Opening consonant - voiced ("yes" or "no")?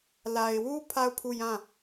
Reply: yes